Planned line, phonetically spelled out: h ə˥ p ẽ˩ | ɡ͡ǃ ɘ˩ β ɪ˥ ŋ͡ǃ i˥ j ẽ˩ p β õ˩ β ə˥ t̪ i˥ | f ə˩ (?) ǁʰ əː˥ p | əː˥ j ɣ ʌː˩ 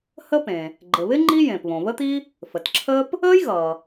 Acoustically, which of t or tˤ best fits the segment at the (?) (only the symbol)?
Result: t